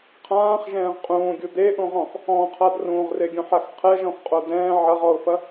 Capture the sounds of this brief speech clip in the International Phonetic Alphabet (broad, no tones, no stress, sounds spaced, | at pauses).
qʰ ãː χ ʒ ɛ̃ː ʁ qʼ ũː ɡʲ u d e ʔ ũ ʁ ɔ̃ x | ɔ̃ qʰ a d r ũ ʁ r e ɡʲ ũ ħ a x qʰ ɛ ʒ ɔ̃ x qʼ o d ɛ̃ː ʕ ɐ ʁ ɔ ʊ̯ f ɐ